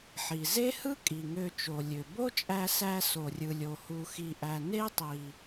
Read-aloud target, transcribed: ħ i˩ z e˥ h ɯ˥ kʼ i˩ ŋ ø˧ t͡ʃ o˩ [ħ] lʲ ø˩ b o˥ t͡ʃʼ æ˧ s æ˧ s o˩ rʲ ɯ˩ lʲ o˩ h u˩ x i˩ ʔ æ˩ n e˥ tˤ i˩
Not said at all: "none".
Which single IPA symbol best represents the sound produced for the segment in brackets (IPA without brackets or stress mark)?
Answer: none